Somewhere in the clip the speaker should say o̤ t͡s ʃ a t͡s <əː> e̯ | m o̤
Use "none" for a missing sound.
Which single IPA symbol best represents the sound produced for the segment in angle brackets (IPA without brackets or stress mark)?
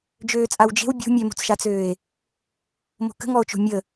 øː